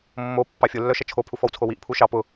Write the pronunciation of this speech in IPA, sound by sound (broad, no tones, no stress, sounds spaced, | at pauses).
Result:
mː o pː ɑ fʲ ʊ lː œ ʃ ʌ t͡ʃʰ o pʰ u f ɔ w t͡sʰ o w i ʔ pʰ u ʃ ɑ p ʊ